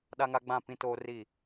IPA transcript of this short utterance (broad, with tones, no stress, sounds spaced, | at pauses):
ɗ a˦ ŋ a˦ ɡ͡b ã˦˨ p ĩ˦ t oː˦ r i˦˨